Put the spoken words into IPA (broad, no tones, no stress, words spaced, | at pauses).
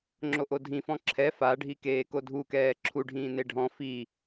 ŋ͡ǁoʔodʱĩfɔ̃ ǁʰɛ faɖʱikeː kodʱukɛː ǁʰuɖʱĩː neɖʱɔ̃ fi